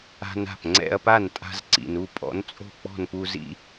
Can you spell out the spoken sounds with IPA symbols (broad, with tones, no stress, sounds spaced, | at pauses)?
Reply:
a̤˧ n a̤˥˩ p ŋ͡ǀ ɛ̰˧ ɐ̯ p a˥˩ n tʼ a̤˧ z ǀ ḭ˩ n u˥˩ pʼ ɔ̰˩˥ n t͡sʼ o̤˥˩ k͡p ɔ̤˥˩ n p u˧ z ḭ˧